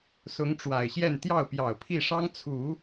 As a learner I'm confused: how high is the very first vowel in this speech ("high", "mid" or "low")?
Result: high